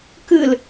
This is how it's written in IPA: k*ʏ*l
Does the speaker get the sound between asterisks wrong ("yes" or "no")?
yes